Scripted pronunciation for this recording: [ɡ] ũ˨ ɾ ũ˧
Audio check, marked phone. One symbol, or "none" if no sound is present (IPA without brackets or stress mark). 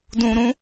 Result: d